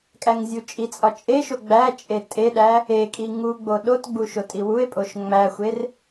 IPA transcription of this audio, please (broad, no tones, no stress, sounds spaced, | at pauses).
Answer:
kʼ æ ŋ zʲ u t͡ʃʼ i t͡sʼ ɒ t͡ʃʼ e ʃ o ɡ͡b æ t͡ʃʼ e tʼ e ɗ æ | e kʼ i ŋ u ɡ͡b o ɗ o t ɡ͡b u ʃ o tʼ i w u e̯ pʼ o ʃ ŋ͡m æ xʷ e r